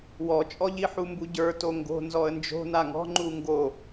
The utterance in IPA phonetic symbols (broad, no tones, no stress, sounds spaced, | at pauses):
w ɔ t͡ʃʼ ɔ ʎ i ħ u m b u ɟ ə˞ t o ŋ ɡ o̤ n z ɔ ə̯ n d͡ʒ o̤ n a ŋ ɔ̤ ŋ͡ǃ u ŋ ɡ o